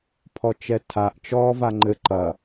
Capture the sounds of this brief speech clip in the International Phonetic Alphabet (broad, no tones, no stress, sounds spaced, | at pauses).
pʰ ɔ t͡ʃ ɛ tʰ a ʔ t͡ʃ ɔː v a ŋ͡ǃ ɘ ǃ ɐ